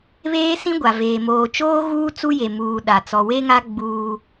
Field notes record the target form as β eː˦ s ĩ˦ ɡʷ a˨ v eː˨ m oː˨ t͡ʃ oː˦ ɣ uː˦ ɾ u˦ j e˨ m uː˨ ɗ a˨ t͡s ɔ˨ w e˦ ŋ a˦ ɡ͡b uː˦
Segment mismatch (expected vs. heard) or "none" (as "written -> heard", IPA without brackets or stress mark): ɾ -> t͡s